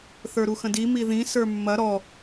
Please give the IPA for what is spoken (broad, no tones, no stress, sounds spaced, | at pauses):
θ ə˞ ɾ u x ə̃ d i m i ð ĩ s ə˞ mː ɐ ɾ ɔ